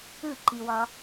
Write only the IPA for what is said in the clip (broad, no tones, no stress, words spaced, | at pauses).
ɯǃiwɒ